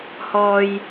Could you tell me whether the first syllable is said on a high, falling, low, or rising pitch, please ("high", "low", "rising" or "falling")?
high